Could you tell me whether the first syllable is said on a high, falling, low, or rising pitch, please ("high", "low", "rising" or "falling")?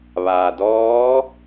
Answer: low